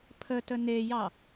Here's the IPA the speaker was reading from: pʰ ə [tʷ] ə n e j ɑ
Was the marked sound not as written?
yes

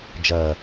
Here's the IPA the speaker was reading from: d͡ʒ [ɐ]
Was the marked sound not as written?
no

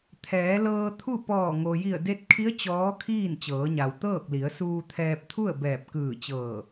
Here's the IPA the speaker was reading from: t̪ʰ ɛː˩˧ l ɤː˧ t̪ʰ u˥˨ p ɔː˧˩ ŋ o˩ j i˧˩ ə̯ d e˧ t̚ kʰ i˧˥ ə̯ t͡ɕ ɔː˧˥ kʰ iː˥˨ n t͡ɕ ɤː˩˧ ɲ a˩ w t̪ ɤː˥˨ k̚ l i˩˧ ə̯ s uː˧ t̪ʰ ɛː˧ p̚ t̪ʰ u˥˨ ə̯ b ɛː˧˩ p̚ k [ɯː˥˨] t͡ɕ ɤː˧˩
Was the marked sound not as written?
yes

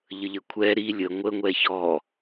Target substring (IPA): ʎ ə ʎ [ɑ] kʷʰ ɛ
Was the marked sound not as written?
yes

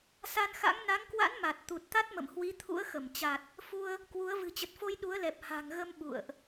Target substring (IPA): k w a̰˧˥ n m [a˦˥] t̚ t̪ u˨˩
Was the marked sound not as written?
yes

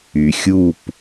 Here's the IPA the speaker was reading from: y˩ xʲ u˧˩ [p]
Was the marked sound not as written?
no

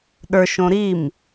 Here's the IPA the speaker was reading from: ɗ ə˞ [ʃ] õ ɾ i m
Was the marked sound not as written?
no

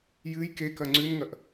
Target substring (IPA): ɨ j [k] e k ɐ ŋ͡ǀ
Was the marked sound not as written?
no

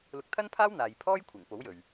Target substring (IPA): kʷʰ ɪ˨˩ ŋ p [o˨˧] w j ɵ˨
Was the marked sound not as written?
yes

